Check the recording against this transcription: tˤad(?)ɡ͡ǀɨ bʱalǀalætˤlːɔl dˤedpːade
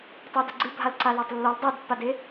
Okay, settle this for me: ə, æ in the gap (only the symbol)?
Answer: ə